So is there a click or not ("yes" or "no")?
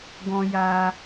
no